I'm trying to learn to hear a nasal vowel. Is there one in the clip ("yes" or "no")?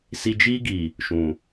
yes